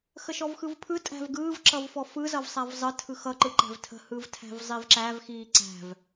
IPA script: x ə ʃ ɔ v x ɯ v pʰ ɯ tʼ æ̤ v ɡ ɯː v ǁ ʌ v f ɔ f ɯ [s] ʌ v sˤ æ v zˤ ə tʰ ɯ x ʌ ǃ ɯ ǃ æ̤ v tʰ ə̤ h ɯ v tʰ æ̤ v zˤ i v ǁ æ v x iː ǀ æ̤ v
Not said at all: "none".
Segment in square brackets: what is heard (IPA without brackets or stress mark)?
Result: z